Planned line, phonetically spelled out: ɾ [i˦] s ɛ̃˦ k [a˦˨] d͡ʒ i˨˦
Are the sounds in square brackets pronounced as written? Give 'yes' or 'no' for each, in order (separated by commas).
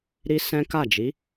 yes, yes